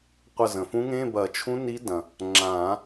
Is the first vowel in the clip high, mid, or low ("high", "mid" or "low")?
low